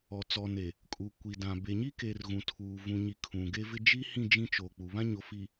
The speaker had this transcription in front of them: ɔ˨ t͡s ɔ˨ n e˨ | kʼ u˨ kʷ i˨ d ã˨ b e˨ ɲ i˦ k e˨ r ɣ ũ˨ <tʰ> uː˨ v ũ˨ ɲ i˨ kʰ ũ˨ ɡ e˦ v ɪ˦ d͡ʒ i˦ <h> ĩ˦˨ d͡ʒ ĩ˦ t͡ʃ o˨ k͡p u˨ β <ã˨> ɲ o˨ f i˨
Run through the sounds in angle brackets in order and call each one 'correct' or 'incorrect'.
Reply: correct, correct, incorrect: ã˦

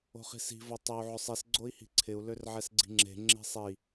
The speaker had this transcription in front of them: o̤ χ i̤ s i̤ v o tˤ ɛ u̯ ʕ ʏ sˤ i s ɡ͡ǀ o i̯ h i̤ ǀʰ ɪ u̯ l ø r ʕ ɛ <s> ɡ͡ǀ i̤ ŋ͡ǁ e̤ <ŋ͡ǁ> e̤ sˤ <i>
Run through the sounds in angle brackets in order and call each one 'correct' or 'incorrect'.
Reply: correct, correct, correct

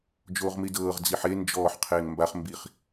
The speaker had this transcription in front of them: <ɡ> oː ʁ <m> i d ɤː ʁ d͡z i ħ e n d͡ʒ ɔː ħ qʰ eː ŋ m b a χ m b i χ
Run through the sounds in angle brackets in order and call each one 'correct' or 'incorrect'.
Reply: incorrect: d͡ʒ, correct

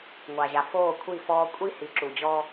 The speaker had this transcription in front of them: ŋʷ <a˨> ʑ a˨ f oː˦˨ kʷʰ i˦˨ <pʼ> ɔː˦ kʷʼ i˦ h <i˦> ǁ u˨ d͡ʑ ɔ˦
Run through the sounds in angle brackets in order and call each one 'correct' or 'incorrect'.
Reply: correct, incorrect: f, incorrect: i˨

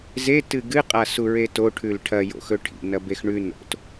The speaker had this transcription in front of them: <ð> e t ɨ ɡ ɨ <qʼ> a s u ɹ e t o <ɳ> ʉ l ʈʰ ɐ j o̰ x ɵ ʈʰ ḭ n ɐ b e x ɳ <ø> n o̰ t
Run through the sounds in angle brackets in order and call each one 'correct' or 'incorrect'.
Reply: incorrect: z, correct, incorrect: ʈʰ, incorrect: ʉ

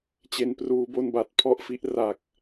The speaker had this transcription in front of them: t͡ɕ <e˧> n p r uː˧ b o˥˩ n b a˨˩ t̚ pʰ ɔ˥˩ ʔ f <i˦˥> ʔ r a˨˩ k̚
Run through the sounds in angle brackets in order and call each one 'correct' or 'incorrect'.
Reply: correct, correct

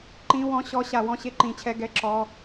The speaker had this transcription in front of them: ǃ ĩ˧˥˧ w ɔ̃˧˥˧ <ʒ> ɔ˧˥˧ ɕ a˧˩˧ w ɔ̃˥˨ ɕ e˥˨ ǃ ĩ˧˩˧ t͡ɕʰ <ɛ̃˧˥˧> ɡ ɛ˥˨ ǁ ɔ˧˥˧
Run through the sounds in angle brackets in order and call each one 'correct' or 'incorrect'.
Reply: incorrect: ɕ, incorrect: ɛ˧˥˧

